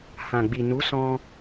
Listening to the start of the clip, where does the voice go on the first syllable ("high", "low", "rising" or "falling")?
low